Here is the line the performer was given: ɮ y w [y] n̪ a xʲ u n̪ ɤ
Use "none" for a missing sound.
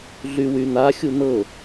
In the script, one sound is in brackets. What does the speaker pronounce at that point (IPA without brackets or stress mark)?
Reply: y